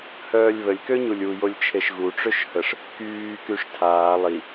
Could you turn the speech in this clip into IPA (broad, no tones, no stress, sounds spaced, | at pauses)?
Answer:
h œː lʲ β ə lʲ k ø ɲ u lʲ u j o lʲ t͡ʃʰ e ʃ ɣ u ʈ͡ʂ ø ʃ h ə ʂ | k yː k y ʂ tʰ aː lˠ i